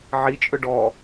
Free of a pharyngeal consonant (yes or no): no